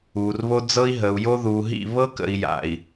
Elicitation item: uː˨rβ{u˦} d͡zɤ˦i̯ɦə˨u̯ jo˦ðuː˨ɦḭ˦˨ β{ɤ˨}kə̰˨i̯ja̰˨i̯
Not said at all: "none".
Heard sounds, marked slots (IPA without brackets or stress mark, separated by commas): o˦, ɤ˦